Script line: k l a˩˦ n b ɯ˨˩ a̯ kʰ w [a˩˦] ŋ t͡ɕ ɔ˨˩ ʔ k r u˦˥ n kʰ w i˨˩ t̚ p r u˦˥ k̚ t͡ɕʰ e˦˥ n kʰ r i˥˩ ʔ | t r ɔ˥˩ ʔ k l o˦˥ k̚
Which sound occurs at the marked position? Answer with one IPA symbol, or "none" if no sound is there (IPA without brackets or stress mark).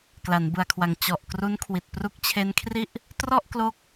a˩˦